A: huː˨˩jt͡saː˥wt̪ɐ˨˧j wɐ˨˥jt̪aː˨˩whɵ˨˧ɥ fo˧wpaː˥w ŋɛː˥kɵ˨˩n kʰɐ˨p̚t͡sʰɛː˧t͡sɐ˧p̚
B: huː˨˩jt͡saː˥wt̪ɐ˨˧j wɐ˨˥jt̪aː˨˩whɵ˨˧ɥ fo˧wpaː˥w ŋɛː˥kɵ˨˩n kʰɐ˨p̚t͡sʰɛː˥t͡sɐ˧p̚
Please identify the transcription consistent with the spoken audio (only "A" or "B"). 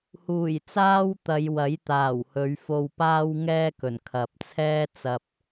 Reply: B